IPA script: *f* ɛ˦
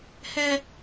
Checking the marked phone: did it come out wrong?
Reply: yes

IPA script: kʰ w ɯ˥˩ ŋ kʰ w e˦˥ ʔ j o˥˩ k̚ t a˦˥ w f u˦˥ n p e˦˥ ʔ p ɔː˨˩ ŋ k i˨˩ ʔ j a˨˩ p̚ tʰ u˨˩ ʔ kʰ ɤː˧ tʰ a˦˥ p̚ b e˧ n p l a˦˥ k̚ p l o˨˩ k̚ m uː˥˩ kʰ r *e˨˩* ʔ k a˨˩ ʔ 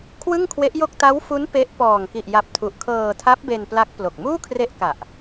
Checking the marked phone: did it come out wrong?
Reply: yes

